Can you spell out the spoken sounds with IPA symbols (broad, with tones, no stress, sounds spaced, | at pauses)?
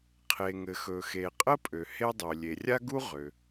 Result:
qʰ e˩ ŋ ɘ˩ x ɵ˩ x e˩ qʼ ə˥ pʼ ø˩ h e˥ dˤ ø˩ lʲ e˩ rʲ a˥ ɡ u˥ ʁ ø˩